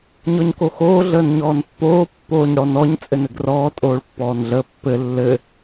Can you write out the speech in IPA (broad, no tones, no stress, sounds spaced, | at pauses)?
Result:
ɲ ɔ ɲ k o x oː ɮ əː n ɲ ɔː n pː oː pː oː ɲ ɽ ɔ n ɔ ɲ t͡sʼ ɘ n ɘ ɡ r ɔː tʼ oː ɭ pː ɔː n ɮ əː pː ɘ lː ɘ